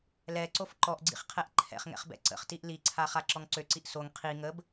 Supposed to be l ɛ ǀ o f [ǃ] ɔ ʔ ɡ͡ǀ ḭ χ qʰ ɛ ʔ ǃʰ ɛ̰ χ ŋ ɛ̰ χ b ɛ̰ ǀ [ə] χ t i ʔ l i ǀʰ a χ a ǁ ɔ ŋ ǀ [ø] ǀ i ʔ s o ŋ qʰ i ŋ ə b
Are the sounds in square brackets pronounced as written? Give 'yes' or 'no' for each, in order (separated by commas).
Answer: yes, no, yes